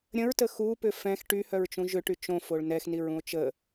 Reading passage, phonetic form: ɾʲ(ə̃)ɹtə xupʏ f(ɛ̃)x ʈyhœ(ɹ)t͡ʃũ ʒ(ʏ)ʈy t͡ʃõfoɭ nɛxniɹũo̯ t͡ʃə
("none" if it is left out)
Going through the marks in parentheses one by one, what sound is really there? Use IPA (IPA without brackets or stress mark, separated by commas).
ə̃, ɛ̃, ɹ, ʏ